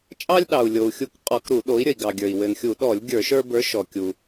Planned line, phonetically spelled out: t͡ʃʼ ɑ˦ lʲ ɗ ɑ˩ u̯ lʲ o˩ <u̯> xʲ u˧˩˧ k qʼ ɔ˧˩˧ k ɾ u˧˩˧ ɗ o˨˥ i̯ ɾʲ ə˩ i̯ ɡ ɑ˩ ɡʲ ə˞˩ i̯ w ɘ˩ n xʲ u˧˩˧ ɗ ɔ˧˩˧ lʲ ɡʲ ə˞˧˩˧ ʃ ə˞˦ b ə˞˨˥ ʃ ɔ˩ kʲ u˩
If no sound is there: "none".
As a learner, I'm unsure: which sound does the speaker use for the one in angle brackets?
u̯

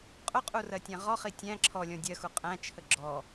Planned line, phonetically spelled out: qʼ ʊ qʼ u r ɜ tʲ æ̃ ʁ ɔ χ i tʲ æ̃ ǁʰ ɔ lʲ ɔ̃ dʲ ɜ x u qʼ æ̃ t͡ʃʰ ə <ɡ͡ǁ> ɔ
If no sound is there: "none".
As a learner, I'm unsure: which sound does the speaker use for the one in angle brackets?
ɡ͡ǁ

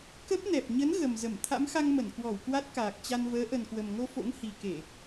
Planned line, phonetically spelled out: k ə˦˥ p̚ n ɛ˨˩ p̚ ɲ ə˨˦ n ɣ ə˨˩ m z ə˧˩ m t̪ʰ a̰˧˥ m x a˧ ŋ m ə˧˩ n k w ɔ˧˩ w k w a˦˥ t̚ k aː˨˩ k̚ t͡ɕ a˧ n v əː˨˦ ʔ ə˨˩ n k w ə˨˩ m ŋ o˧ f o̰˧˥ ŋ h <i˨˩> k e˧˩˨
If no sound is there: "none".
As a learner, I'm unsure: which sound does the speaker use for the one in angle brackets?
i˨˩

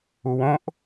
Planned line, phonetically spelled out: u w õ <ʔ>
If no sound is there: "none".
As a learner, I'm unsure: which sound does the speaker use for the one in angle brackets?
ʔ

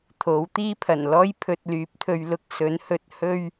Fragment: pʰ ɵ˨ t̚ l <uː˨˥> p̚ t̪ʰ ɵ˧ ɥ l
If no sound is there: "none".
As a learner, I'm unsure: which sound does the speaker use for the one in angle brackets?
yː˨˥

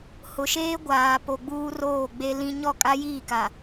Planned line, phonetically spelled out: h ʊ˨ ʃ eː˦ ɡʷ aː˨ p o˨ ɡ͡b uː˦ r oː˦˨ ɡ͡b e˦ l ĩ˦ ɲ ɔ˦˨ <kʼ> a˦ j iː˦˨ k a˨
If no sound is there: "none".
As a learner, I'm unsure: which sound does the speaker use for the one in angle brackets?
kʼ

